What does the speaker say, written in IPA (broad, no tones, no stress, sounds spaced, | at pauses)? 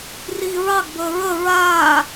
r iː ɹ ɑ ɡ b əː ɹ ə ɹ aː